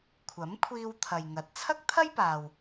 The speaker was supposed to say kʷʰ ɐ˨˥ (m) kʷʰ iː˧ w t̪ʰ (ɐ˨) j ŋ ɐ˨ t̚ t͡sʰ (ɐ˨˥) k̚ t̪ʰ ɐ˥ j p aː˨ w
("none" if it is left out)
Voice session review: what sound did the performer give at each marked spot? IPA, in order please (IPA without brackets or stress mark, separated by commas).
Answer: m, ɐ˨, ɐ˥